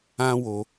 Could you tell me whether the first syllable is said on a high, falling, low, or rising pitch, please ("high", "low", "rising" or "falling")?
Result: high